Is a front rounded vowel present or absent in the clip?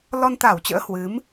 absent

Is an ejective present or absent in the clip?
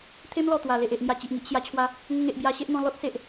absent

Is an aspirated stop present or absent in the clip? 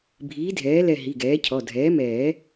present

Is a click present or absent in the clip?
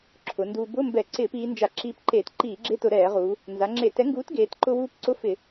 present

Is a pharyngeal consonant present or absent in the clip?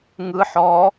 present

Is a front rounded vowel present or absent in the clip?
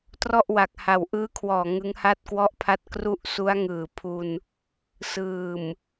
absent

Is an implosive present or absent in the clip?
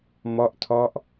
absent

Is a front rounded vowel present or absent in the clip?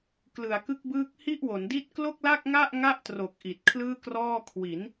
absent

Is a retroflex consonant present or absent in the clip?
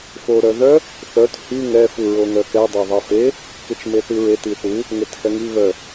absent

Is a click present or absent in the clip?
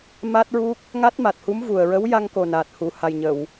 absent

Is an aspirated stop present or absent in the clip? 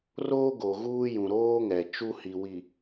absent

